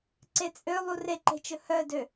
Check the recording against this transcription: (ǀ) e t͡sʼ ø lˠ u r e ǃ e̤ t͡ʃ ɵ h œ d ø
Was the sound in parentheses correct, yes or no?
yes